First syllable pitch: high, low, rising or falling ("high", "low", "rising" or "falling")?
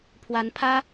rising